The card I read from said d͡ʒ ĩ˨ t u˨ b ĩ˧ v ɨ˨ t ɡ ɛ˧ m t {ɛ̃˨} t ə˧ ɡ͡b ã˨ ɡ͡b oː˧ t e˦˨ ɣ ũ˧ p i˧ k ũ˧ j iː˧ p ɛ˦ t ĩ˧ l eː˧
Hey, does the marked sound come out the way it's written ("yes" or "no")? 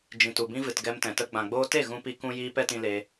yes